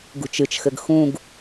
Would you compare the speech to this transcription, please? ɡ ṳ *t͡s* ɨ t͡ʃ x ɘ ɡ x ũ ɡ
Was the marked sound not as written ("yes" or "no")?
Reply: yes